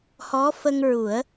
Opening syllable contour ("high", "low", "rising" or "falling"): rising